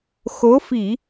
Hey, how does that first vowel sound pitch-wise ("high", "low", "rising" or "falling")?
rising